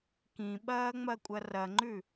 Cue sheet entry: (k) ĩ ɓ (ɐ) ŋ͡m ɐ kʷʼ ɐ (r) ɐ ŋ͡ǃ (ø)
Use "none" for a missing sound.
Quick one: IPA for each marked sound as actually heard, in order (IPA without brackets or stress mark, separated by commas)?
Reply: k, ɐː, r, ʉ